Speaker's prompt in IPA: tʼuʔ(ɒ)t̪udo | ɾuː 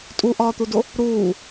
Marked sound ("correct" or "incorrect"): incorrect